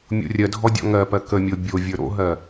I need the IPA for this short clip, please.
mʲ o̰ rʲ ɜ dʱ ɔ dʲ ɔ̰ ŋ ɜ p ɜ k ə mʲ o bʲ o vʲ ə˞ ɾ o̰ ɦ ɜ

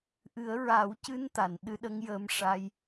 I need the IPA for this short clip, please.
ʔ ɨ˨˩˦ ə̯ ɹ a˨˩˦ w c ɨ˧ n t̪ a˨˩˨ n ɗ ɨ˧ ɗ ə˧˥ ŋ j əː˧ m ʂ a˧ j

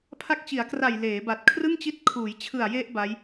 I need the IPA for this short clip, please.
pʰ a˦˥ k̚ t͡ɕ i˩˦ a̯ k r a˨˩ j l eː˩˦ b a˨˩ t̚ kʰ r ɯ˥˩ ŋ t͡ɕ i˦˥ t̚ kʰ uː˩˦ j t͡ɕʰ ɯ˨˩ a̯ j e˦˥ ʔ b a˦˥ j

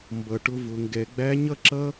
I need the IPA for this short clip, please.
m b ʌ˩˧ ʈ ʊ˧ v ʊ˩˧ ŋ ɡ ɛ˩˧ ɡ͡b æ˧˥ ɲ ʌ˥ ǁ ʌ˥

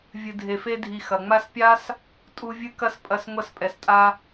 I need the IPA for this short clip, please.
vʲ ɨ˨ dʱ e˨ f e˦ dʱ i˨ x ɐ˩ ŋ͡m a˦ s pʲ a˥ s | tʼ u˦ vʲ ɨ˥ k ɐ˥ s pʼ ɐ˦ s ŋʷ ɐ˦ s pʼ ɛ˨ s tʼ a˦

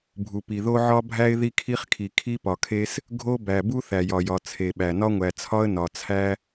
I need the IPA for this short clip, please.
bʱ u˩ p i˩ ð o˦ ʕ ɒ˦ bʱ æ˦ ɪ̯ ð i˦ kʰ i˦ χ kʰ i˩ kʰ i˦ p ɒ˩ kʰ e˦ s | ɡʱ o˦ b æ˩ b u˦ θ æ˩ j ɒ˩ j ɒ˩ t͡sʰ e˩ ɓ æ˩ n ɒ˦ ŋʷ æ˩ t͡sʰ ɒ˦ ə̯ n ɒ˩ t͡sʰ æ˦

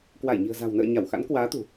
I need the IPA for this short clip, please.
k w a˧˩ j ɲ i̤˨˩ ə̯ z a̤˨˩ w n ə̰ː˧˨ ɲ a˧˩ w x a̰˧˥ n k w aː˨˦ t̪ ṳ˨˩

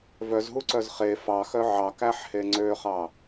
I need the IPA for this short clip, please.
v œ z ɦ u ǀ œ z χ e f ɑ x œ ʕ ɑ k æ ħ h e ŋ͡ǀ ø χ ɑ

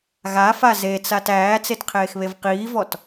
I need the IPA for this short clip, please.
ɣ a f a z e t͡s a t æː t͡s e t qʰ eː x β e v q iː v ɔ t

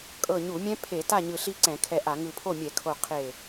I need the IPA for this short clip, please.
kʼ ɤ˧˩ ɲ u˧˩˧ mʲ ɛ̃˦˥ pʰ e˧˩˧ t a˥˨ ɲ ɯ˧˩ ɬ i˦˥ ǀ ɛ̃˧˩˧ kʰ ɛ˧˩ ʔ a˧˩˧ ŋ ɯ˧˩ pʰ o˥˨ mʲ ɛ˧˩˧ kʰ o˧˩ qʰ e˧˩

